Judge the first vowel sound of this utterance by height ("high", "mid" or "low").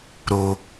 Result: mid